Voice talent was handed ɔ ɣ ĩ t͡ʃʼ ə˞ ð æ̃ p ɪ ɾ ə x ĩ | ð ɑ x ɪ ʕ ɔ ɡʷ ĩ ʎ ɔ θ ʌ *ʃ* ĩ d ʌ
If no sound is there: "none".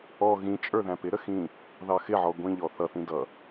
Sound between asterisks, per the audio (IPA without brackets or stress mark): θ